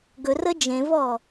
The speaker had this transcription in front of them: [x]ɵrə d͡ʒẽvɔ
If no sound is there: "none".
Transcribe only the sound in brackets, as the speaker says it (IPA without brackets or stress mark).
ɡ